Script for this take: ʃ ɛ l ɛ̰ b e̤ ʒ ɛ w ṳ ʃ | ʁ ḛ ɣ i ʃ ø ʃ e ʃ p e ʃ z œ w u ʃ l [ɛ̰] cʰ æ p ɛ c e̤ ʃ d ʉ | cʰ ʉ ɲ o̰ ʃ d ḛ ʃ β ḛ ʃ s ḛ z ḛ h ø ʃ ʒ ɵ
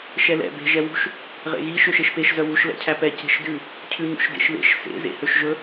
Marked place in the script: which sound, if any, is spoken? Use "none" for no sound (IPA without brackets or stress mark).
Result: ɛ̰